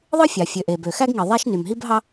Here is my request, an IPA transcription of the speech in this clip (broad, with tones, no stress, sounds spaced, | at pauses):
ðˤ ɯ˥ fʲ ɑ˩ fʲ ø˩ ʔ e˩ b ø˩ x æ˥ ɡ ŋ i˩ ðˤ æ˥ ʃ n y˩ m ɦ i˥ b ɦ ɑ˥